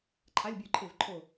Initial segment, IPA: ǃʰ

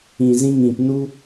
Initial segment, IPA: ĩ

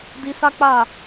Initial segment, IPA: d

